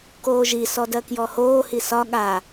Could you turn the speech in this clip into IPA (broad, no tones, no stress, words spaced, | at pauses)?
koːʒi sɔdɜkjɔhoː hisɒ ɠa